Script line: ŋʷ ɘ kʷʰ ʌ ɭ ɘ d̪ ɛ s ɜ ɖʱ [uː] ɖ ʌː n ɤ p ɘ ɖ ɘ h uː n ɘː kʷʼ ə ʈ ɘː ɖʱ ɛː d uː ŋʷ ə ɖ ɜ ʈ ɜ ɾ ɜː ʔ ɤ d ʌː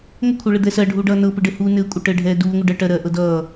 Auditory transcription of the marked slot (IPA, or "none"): uː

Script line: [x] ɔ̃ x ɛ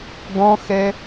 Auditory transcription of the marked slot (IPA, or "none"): ɡ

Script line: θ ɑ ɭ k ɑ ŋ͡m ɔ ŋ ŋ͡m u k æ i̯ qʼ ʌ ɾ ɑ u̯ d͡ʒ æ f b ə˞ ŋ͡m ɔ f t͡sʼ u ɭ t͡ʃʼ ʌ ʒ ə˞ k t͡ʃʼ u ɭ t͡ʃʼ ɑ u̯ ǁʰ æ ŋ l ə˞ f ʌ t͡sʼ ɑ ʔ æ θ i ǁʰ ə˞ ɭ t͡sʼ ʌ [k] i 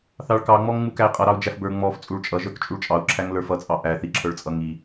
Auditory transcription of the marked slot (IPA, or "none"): ŋ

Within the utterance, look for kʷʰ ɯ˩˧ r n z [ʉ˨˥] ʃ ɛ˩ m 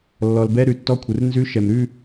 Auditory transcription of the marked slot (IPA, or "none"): ʉ˨˥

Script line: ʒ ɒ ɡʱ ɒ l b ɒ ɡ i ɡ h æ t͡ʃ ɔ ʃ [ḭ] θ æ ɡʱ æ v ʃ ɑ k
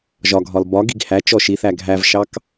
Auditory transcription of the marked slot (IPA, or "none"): i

